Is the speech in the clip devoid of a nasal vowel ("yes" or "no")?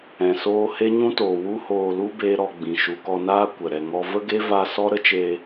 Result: no